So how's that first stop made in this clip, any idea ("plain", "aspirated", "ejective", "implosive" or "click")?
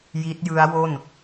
plain